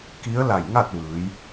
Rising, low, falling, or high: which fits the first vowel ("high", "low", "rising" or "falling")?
rising